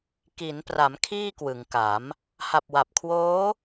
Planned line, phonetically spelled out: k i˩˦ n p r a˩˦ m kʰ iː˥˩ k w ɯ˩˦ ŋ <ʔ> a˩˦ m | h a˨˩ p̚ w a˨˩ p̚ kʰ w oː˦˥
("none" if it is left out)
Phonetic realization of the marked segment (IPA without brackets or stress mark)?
k